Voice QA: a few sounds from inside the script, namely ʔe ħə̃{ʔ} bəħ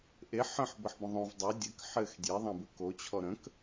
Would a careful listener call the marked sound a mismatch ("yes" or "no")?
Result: yes